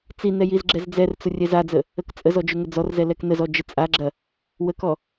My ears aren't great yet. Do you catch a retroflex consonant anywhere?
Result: no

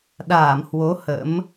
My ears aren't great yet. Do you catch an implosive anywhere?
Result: yes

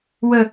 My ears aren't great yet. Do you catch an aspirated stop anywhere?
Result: no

